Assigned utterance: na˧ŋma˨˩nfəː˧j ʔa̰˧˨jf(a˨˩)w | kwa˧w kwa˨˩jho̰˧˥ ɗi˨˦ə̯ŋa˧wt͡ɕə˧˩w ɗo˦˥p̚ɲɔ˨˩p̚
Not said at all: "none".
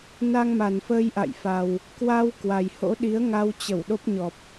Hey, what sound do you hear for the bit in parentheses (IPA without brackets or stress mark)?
a˨˩